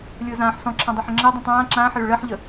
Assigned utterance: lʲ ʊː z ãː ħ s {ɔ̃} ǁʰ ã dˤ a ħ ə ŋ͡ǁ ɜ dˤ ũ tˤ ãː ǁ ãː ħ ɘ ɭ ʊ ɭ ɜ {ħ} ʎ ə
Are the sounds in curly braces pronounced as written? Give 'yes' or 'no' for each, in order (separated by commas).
yes, yes